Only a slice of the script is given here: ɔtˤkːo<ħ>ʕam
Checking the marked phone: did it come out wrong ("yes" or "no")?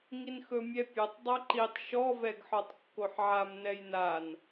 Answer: no